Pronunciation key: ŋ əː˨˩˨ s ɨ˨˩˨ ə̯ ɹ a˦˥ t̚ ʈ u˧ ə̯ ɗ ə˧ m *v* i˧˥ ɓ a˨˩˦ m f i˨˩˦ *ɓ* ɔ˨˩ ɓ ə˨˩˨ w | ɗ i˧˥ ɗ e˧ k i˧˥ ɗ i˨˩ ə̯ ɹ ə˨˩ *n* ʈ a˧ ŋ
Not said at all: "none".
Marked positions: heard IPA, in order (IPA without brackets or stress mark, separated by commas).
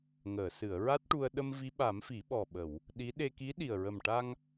v, ɓ, m